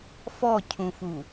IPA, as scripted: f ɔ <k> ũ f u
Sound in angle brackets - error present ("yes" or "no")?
yes